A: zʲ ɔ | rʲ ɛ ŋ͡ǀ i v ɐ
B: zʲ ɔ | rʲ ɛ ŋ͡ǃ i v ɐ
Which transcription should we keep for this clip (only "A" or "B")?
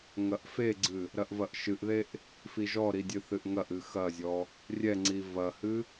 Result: A